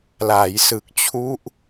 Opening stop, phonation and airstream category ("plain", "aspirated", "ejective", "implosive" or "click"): plain